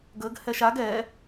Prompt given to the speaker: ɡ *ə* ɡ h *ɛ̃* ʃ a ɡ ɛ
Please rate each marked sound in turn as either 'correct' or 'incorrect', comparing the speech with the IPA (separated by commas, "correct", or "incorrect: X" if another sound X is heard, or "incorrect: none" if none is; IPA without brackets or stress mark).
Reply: correct, incorrect: ɛ